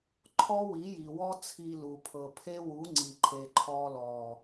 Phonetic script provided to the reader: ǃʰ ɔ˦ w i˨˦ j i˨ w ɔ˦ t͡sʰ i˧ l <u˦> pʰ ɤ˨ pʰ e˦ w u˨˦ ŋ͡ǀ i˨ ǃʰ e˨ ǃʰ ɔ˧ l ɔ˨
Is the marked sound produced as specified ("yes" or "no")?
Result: no